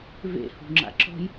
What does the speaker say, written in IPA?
v ḛ h ṳ ŋ͡ǁ a̰ ǁ ɔ̤ j

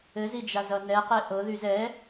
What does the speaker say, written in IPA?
ɘ z i d͡ʒ a z ʌ n ɛ q e ʔ ɤ ð y z ɛ

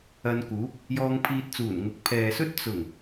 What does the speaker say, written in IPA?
ɐ˧ n k uː˨˥ p̚ | j ɔː˧ ŋ pʰ iː˧ t̚ t͡s uː˨˩ n ŋ ʊ˨ k̚ pʰ ɛː˨ s ɵ˥ t̚ t͡s ʊ˨˩ ŋ

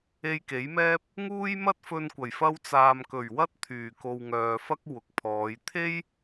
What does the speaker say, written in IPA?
e˧ j k e˨˥ j m ɛː˥ p̚ | ŋ uː˥ j m ɐ˥ t̚ f ɵ˧ n kʷ ɐ˨˩ j f ɐ˧ w t͡s aː˨ m k ɵ˨˩ ɥ w ɐ˥ t̚ t̪ʰ yː˨˩ k o˨ w ŋ œː˨ f ɐ˥ k̚ w ʊ˨ k̚ pʰ ɔː˨˧ j t̪ʰ e˥ j

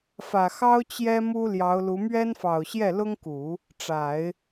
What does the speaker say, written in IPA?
f ä˨˩ x ɑ˥ ʊ̯ t͡ɕ j ɛ˥ m u˥ l j ɑ˧˥ ʊ̯ l u˧˥ m ɥ ɛ˥ n f ɑ˨˩ ʊ̯ ɕ j ɛ˥˩ l ʊ˥ ŋ k u˨˩˦ | ʈ͡ʂ a˨˩˦ ɪ̯

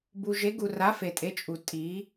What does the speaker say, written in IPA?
b u˨ ʒ e˨˦ ɡ u˨ r a˨˦ f e˨ tʼ e˨˦ t͡ʃʼ u˨ tʼ i˨˦

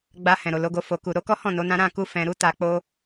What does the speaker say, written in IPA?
ɡ͡b a˧ h ɛ̃˨ ɾ o˨ l o˨˦ ɡ o˧ f o˨ k u˨ ɾ o˧ k ɔ˦ h ɔ̃˦˨ n o˨˦ n ã˦ ɾ ã˦˨ k u˧ f ɛ̃˨ ɾ u˧ t a˧ k͡p o˦

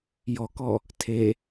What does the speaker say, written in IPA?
j ɔ k ɔ | tʰ e

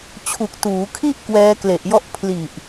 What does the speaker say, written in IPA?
t͡ɕʰ u˨˩ k̚ t uː˩˦ kʰ i˥˩ ʔ k w ɛː˦˥ k l e˨˩ ʔ j ɔ˥˩ ʔ pʰ l i˨˩ ʔ

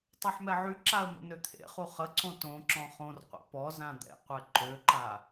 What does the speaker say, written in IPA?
tˤ ɛ ħ m ɛ ʕ y ǁ a ə̯ m ə̰ n ø t̪ʰ ḛ χ u χ ə ǀ õ t õ ǁ ɔ̃ χ õ r qʷ a̰ p ɔ z ã d̪ ɛ̰ qʷ ɛ ǃ ø ǃ a

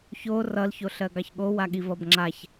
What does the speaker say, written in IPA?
ç o r ʌ l ç o ɬ ɜ ɡ ɑ ç ɠ o w a ɠ i v ʌ b ŋ͡ǁ a ç

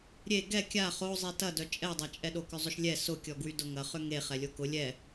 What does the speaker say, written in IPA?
ɾʲ e ɡ ɛ kʲ a χ o zˤ i t ɐ d œ t͡ʃʼ ɛ dˤ ɐ t͡ʃʼ ɛ ɗ o k ʏ zˤ ʏ ʃ lʲ ɛ s ʊ kʲ ɔ ɡ w y d ʊ ŋ ɐ χ ʏ ŋ e χ ɛ lʲ o k ʊ lʲ ɛ

